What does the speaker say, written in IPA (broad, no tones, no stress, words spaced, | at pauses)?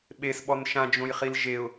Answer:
ɓesɓɔn ʃãd͡ʒõjχil ʒeʊ̯